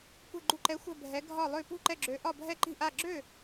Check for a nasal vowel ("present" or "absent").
absent